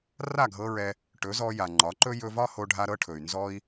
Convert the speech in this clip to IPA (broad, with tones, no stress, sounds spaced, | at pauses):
r a˦˨ ɡʱ ɤ˧ ɹ ɛ˧ | ʈ ɵ˨˦ z ɔ˧ j a˨ ŋ͡ǃ ɒ˨˦ ǃ ɵ˦ j ɵ˧ v ɒ˦ h o˧ ɖʱ a˧ ɾ ɤ˧ ʈʰ ɵ˨ y̯ n z ɔ˦ i̯